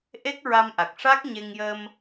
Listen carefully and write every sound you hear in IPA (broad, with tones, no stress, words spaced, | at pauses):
ʔe˦˥k̚ɹa˧mʔa˨˩k̚ʂa˦˥k̚ ɲe˧ŋjə˧m